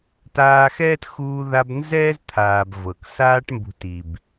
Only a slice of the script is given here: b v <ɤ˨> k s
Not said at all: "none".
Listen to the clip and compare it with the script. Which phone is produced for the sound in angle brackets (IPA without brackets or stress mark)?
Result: ɤ˨